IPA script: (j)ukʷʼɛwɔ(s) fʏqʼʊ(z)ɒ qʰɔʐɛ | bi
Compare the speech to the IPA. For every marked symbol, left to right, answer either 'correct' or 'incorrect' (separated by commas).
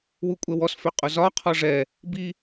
incorrect, correct, correct